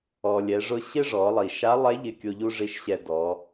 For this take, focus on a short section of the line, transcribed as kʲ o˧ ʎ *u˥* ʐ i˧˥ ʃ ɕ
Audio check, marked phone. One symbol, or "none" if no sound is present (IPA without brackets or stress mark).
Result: u˥